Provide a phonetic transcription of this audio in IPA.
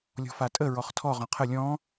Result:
lʲ ɔ̤ f a tʼ ə ɹ ɔ χ tʰ ɔ ʁ ɔ̃ qʰ ə lʲ ɔ̃

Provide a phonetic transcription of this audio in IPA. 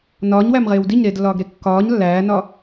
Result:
n ɒː ɲ w æ m ʁ eː w d i ɲ ɾ eː d lː ɒː ɡ ɾ e kː ɒː ɲ lː æː n ɒ

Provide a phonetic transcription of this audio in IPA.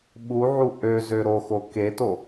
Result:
ɓ u ʕ u ʔ ø z ø ɾ o x o k e t o

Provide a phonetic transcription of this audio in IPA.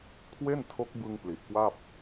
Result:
kʰ w e˥˩ n tʰ o˦˥ k̚ b ɯ˧ ŋ p l i˨˩ ʔ k w a˥˩ p̚

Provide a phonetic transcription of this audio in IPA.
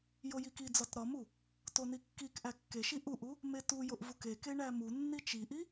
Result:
j o j i k i d͡z ɒ t ɾ ɒ m u | t o n i kː i k ʔ æ kː e ʃ i ʔ u ʔ u | m e t u j o ʔ v u k e k e ɳ æ m u nː i t͡ʃ i ʔ i

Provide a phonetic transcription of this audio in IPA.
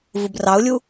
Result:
v u b r ɑ ʊ̯ lʲ u

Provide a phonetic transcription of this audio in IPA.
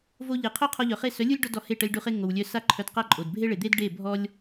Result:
v o˧ ʎ e˨ qʰ œ˦ qʰ ɔ˧ ʎ œ˨ χ e˦˨ s œ˨˦ lʲ u˦ lʲ ɖ ɔ˦ d ɔ˧ h e˦˨ ʈ ə˧ lʲ ɖ u˧ χ e˦ ŋ o˨ w lʲ œ˧ s a˦ ǃʰ œ˧ d q a˦ ǃʼ o˨ d bʱ e˦ ɭ e˨ d̪ e˦ d ɖ e˦˨ bʱ ɔ˦ lʲ

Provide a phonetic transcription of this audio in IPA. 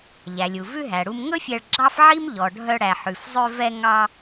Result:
ʎ æ˩ lʲ u˩ v ʉ˧ ɦ æ˩ ɽ u˧ m ŋ ɵ˥ fʲ ɛ˧ ɭ ɡ͡ǁ ɑ˥ f ʕ i˥ m ʎ ɔ˩ ɖʱ œ˧ ɽ æ˩ ħ ʉ˩ f zˤ ø˧ v ɛ˧ ŋ ɑ˧

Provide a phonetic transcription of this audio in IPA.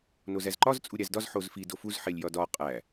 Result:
n o z æ z ǃ ɒ z t͡sʼ u ɾʲ æ z d ɒ z ħ o z f i d o f u z ħ e lʲ j ɒ d ɒ qʼ æ

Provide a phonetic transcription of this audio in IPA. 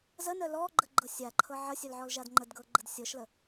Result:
z ə n œ l ɔ ɡ͡ǃ ə ɡ͡ǃ ɤ sʲ a ǃʰ ɤ ʕ ə sʲ œ l ʕ ɔ l ʒ a d ŋ͡ǃ ə d ɡ ɤ ɡ͡ǃ ə d sʲ ɤ ʃ l ə

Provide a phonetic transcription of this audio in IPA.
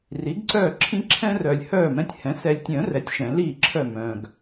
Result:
r i˩˥ ɡ ǀ œː˥˩ ǁʰ ĩ˦ ǁʰ ɛ̃˦ r œ˨ lʲ h œː˥˩ m ɛ̃˦ tʲ h ɛ̃˩˥ s ɛ˨ lʲ tʲ œ̃˨˩˦ r ɛ˩˥ tʲ ʃ ɛ̃˨˩˦ l iː˥˩ ǁʰ œ˥˩ m œ̃ː˨ ɡ

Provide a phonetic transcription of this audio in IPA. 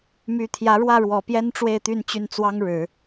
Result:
m y˧˥ t̪ʰ j ä˧˥ ɻ w ä˥˩ ɻ w ɔ˨˩ p j ɛ˥ n ʈ͡ʂ w e˥˧ ɪ̯ t̪ y˥˧ n t͡ɕ y˥˩ n t͡s w ɑ˥ ŋ ɻ ɻ̩˨˩˦

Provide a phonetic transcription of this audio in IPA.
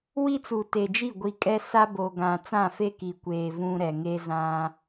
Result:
w i˦ t͡s u˨ t e˨ d͡ʒ i˦˨ ɡʷ i˨ kʼ ɛ˦ s a˦ b o˨ ɡ ã˨ t͡s ã˦˨ f e˦ k i˨ kʷ eː˨ v ũ˦ ɾ ɛ˨ ŋ e˦ z ã˦

